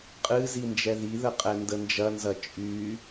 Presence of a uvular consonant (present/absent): present